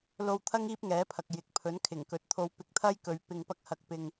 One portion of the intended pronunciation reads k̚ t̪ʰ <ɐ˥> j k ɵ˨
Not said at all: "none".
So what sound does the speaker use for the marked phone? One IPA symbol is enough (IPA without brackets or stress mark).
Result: ɐ˥